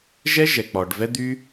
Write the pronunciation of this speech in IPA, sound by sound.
ʒ ɛ˦ ʒ ɛ˨ k͡p ɔ˨ ɖ v ɛ˦ d̪ y˦

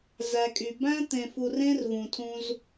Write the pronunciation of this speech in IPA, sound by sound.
z æ˨ kʼ y˨ b æ̃˦ t̪ ẽ˨ f u˨ r ẽ˦ r v ũ˨ tʰ ũ˦ z

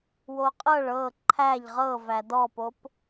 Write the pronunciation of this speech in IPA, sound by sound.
w o qʼ ɤ ɭ ɤ ǃʰ æ ʎ ʁ ɤ v æ d ɔ p o p

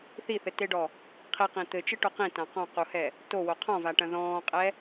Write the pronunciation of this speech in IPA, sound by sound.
θ i θ ɘ t e ɖ ɔ | qʰ i q ĩ t̪ ɘ t͡ʃ ɘ ʈ o q ĩ t ã q ɔ̃ q u h ɛ | t o w o qʰ ɔ̃ v a ʈ ɐ̃ ð ɔ̃ː qʼ ɛ

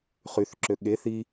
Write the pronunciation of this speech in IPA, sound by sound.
χ y θ ǁ ø ɠ e θ i

